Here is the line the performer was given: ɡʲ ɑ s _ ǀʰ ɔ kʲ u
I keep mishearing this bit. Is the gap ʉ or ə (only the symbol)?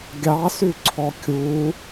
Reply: ʉ